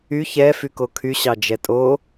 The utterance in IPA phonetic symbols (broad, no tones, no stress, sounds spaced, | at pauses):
y ç ɛ f y k o kʰ y ɕ ɑ d͡ʒ ɛ tʼ o